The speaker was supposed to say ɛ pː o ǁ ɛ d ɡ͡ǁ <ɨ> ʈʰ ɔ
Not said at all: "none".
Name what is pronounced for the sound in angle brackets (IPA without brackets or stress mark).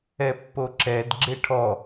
e